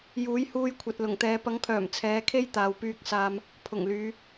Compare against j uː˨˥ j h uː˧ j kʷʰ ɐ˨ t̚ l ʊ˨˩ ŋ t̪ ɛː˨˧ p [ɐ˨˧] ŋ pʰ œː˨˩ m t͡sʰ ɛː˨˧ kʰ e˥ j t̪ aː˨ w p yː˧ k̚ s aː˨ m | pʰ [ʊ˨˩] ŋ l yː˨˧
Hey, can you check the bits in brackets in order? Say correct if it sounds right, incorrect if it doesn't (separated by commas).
incorrect, correct